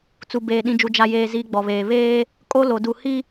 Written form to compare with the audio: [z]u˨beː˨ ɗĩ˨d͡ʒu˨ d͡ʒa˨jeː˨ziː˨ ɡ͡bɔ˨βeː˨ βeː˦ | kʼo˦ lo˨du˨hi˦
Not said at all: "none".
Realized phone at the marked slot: t͡s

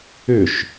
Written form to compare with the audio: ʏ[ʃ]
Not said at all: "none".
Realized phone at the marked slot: ʃ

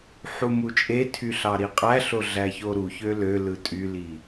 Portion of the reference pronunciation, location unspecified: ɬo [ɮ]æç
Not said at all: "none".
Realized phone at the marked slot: ɮ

